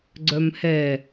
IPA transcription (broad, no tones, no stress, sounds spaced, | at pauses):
ɡ͡ǀ œ m h ɛ